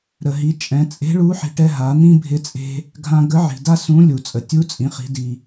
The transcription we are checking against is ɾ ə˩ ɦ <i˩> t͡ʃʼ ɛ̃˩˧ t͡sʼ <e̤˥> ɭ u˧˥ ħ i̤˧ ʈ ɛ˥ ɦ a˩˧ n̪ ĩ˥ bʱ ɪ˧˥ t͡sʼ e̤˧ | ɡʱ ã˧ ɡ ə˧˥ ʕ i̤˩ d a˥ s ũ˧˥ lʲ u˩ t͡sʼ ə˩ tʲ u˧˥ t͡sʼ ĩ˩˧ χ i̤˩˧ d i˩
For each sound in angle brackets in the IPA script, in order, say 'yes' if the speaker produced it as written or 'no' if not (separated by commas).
no, no